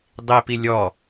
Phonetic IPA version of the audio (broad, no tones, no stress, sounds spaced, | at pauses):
dˤ i p i lʲ ɔ